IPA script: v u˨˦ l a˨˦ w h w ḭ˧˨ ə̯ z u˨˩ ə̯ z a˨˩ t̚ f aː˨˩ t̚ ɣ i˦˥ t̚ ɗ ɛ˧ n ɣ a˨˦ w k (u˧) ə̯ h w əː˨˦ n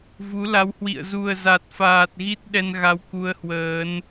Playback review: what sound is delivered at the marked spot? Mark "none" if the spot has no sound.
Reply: u˧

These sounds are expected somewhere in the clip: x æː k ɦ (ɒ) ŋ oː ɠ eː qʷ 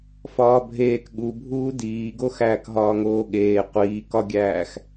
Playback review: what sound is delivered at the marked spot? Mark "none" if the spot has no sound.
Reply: ɒː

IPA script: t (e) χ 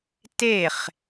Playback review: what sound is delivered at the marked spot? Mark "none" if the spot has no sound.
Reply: e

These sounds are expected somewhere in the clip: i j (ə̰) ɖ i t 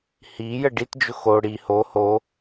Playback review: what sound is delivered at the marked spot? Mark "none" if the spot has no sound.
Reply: ə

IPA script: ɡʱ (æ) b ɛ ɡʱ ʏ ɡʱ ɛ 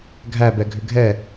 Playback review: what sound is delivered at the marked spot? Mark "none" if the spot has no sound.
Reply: æ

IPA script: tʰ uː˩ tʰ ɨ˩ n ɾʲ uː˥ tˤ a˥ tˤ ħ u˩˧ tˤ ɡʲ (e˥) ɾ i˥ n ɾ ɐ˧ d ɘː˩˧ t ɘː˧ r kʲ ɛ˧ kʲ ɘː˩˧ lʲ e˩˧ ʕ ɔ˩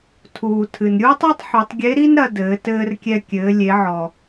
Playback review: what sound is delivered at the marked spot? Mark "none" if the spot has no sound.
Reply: e˧˥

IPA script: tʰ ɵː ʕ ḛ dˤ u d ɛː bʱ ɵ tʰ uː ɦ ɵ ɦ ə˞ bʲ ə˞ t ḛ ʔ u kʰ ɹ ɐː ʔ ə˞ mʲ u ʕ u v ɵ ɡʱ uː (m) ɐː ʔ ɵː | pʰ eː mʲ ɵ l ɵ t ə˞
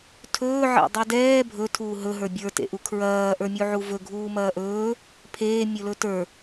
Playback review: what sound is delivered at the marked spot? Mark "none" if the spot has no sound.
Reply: m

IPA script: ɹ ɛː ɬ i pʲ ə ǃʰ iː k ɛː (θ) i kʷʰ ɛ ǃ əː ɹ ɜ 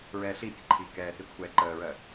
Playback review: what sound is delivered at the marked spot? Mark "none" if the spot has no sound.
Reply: θ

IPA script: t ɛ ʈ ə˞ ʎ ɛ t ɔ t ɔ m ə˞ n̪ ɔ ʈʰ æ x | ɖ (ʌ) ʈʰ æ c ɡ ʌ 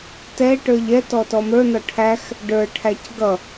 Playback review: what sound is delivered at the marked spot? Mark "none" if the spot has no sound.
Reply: ə˞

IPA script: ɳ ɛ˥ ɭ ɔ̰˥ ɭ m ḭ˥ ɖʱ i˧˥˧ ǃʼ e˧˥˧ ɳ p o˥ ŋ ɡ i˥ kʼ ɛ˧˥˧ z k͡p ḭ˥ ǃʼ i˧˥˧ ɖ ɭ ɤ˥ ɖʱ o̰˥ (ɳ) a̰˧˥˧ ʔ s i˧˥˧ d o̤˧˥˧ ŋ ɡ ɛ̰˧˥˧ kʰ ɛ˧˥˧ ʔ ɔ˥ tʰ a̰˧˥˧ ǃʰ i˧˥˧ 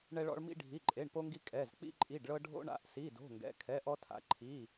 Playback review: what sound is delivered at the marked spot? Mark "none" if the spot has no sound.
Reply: ɳ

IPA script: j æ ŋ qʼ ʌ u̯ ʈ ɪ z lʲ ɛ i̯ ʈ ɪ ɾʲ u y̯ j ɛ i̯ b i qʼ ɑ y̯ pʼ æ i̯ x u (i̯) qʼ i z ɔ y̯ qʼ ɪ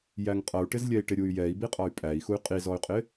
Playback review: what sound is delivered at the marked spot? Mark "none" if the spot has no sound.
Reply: y̯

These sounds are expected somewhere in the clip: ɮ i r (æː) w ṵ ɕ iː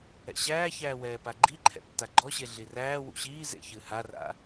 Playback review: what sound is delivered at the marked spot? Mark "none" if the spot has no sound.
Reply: æː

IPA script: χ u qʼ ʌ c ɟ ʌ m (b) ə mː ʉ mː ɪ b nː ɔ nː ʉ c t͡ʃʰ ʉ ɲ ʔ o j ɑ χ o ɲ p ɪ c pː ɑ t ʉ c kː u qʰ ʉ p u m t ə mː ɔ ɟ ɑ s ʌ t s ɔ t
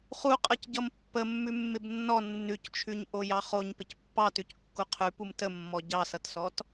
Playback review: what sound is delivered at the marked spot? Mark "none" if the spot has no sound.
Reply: pː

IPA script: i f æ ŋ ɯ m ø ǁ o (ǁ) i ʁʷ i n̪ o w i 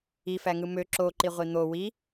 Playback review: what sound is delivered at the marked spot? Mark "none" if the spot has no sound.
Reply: ǃ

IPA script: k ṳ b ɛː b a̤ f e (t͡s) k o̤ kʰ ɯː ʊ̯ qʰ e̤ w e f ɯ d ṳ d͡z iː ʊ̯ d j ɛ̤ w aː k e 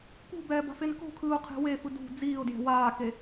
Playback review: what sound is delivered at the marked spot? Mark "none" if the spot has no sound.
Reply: n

